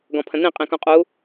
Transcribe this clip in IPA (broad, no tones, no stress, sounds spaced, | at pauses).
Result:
ɡ ɔ̃ pʰ ə̃ n ĩ qʼ ĩ k ũ qʼ u